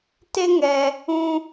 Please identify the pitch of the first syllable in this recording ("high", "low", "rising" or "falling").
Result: high